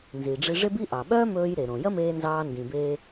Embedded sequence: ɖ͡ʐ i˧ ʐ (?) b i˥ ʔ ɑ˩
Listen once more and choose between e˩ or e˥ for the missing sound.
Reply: e˥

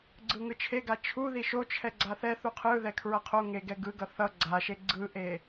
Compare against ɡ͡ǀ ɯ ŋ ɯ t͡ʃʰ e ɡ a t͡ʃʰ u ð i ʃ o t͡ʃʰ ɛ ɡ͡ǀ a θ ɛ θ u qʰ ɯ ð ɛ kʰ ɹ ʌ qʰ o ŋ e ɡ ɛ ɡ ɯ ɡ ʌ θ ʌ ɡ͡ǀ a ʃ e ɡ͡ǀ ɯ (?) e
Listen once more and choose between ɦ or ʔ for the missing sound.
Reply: ʔ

